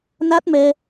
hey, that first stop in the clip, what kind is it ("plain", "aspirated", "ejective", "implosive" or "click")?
plain